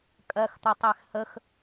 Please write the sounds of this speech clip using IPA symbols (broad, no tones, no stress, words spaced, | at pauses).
kʼɜxt̪ʌtˤæx həx